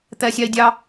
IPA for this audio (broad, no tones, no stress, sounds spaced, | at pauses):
t̪ ɛ sʲ ɑ i̯ dʲ ɑ